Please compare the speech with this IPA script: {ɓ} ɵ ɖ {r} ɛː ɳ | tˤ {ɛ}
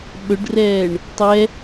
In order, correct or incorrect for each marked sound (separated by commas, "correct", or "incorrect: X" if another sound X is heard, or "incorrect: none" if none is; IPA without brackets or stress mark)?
correct, correct, correct